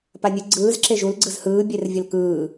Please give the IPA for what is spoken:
p a nʲ ɯ ɡ͡ǀ ɯː z ǁ e ʒ u l ɡ͡ǀ ɯ z h ɯː bʲ e r vʲ ə l k ɯː

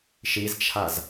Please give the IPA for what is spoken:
ʃ i z t͡ʃʰ a z

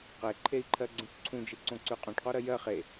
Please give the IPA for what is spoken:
q e ǃʰ e i̯ ǃʰ ɜ ɡ͡ǀ ũ ʈ ǀʰ ũ d͡ʒ ɨ ǀ õ ǀ ʉ qʼ õ ʈ q o ɾ ɜ j ɜ χ e

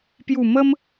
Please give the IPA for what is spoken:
p j u˨˩ m ə˦ m

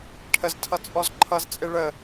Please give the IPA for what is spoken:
ʈʰ ə z tʰ ʌ t͡sʼ ɔ z ǃʰ ʌ z t͡sʼ ɪ ɭ ə

